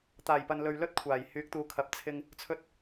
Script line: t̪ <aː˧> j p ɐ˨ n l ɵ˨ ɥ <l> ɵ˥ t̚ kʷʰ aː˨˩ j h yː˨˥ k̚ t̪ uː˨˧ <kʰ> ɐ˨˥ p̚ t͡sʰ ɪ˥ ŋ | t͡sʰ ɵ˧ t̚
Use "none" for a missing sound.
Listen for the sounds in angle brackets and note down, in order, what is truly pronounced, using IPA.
aː˨˩, l, kʰ

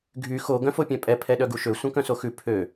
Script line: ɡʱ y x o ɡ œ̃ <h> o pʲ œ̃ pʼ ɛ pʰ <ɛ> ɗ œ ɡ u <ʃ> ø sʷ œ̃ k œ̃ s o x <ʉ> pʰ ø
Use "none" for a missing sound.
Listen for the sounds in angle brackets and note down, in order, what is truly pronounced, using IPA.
f, ɛ, ʃ, ʉ

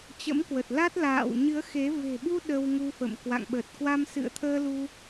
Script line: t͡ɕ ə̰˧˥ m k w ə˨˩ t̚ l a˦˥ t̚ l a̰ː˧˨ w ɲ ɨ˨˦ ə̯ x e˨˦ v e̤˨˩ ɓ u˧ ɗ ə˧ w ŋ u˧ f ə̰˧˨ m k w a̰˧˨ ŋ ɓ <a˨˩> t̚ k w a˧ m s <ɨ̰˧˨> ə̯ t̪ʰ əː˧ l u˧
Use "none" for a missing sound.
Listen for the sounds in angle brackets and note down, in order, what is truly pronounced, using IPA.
ə˨˩, ɨ̰˧˨

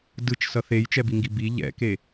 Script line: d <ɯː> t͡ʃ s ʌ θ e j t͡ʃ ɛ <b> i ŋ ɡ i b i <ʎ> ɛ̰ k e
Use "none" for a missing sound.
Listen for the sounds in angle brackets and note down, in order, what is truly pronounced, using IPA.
ɯ, b, ʎ

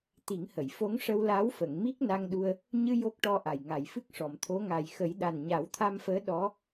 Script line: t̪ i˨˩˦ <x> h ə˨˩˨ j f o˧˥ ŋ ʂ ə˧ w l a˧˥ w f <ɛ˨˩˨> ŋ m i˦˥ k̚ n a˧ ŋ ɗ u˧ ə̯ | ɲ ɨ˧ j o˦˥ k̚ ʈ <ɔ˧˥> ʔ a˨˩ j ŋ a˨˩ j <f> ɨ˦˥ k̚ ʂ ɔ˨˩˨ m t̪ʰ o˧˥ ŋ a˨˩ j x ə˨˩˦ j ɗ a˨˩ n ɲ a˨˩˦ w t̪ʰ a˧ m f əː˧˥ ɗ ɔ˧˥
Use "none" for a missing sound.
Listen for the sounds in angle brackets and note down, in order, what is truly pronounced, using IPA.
ŋ, ə˨˩˨, ɔ˧, f

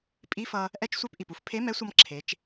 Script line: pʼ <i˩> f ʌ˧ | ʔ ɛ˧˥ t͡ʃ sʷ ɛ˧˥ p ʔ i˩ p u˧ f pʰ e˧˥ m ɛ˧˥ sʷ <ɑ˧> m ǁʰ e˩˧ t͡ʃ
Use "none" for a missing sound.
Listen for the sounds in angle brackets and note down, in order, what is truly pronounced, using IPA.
i˧˥, ʌ˧

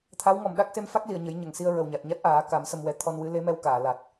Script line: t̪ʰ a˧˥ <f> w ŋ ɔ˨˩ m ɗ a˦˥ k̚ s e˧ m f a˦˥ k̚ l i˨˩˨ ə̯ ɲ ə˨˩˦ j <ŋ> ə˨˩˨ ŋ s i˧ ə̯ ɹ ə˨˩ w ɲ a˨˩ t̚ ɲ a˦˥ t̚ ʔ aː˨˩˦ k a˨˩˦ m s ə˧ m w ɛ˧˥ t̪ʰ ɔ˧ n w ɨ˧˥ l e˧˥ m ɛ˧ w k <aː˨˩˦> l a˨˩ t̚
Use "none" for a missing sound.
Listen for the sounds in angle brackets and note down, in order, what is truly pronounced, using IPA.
none, ɲ, aː˨˩˨

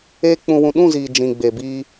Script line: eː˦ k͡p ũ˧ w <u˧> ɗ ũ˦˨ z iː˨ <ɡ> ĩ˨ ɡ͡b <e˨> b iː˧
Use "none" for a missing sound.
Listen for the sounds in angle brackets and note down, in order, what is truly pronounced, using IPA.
ũ˧, d͡ʒ, e˨

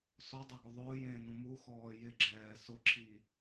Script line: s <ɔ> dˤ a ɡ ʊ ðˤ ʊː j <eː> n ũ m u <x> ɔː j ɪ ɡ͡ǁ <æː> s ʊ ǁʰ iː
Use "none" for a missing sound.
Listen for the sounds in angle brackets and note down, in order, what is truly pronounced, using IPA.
ɔ, ẽː, x, ɛː

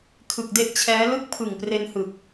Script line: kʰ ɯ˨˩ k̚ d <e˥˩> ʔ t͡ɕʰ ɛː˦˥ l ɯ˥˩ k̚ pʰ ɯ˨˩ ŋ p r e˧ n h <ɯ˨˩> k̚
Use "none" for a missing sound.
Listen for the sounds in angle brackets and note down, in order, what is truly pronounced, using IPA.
e˥˩, ɯ˨˩

